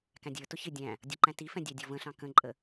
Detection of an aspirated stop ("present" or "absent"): absent